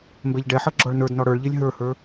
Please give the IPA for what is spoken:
m b ɛ ʎ ɖ ɛ ħ ʌ ɡ͡ǁ ɔ ɭ n ə˞ d n ɔ ɽ ə˞ ɭ ʎ e lʲ ɦ ə˞ h ə˞

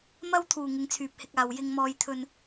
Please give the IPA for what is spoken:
m ɐ˥ w t̪ʰ uː˨˩ ŋ ɪ˨˧ ŋ t͡sʰ yː˨ p̚ h ɪ˧ k̚ aː˨ w j ɪ˧ ŋ m ɔː˧ j t̪ʰ ɵ˧ n

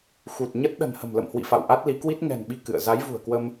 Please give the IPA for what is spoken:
x u˨˩ t̚ ɲ ə˦˥ t̚ ɗ ə̤˨˩ n h ə̤˨˩ m l ə̰˧˨ m h w ḭ˧˨ f a̰˧˨ w ʔ a˦˥ t̚ l i˨˦ k w i˦˥ t̚ ŋ ɛ̤˨˩ n ɓ i˧ k ɨ̰˧˨ ə̯ z a˨˦ j v ṳ˨˩ ə̯ k w ə˧ m

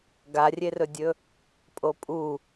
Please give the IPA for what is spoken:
ɡ a rʲ e r ɵ dʲ ɵ | pʼ o pʼ u

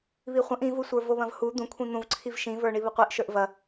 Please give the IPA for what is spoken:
β i χʷ ɐ̃ ʔ ĩ v u sʷ ə˞ v o β ɐ̃ v h u d̪ ũ kʷʰ ĩ n̪ ũ v ǀʰ i v ʃ ĩ v ə˞ ɳ i β ə qʷ i ʔ ʃ ə˞ ʔ v ɐ

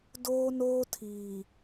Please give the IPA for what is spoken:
d oː˦ n oː˦ tʰ iː˨

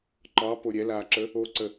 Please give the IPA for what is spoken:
ǃ ɑ p o ɾʲ ɛ l aː ǁ ə | o ǀ ə

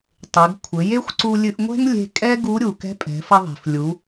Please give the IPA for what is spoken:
tˤ e˩˧ ɡ kʷʰ ɘ˩˧ j e˥ xʷ ǀ u˧ lʲ ɨ˧ ʔ ŋʷ ɛ̤˥ ŋ lʲ e̤˧ kʼ ɛ˥ ɡ u˧˥ ɾʲ u˩ k ɛ̤˧˥ pʼ ɛ̤˩˧ f ɐ˧ ðˤ e̤˩ f lʲ u˩˧

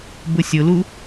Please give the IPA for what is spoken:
b ʊ sʲ ʊ l u

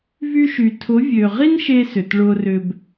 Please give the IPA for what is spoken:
v y˧ ʃ y˨ tʰ ʊ˨˦ vʲ ø˨ ʁ i˦ n ʃ eː˧ s ʏ˨ t ɭ ʊː˧ r ʏ˧ b

